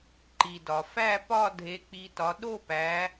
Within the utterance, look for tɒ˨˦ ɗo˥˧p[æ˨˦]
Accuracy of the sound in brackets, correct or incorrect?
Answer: correct